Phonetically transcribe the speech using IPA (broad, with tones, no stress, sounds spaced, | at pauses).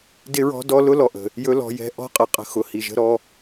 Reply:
d ɪ˦ ɹ ɔ̤˦ d ɔ˦ l ʊ˦ l ɔ˨ ʔ ə̤˨ | j ɵ˦ l ɔ̤˧ j ɛ̤˦ ʔ ɔ̤˦ qʼ ə˨ qʼ ə̤˧ x ʊ˨ h i˨ ʒ ə̤˧ ɾ ɔ˧